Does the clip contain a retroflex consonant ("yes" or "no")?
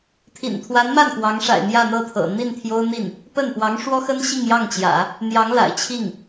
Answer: yes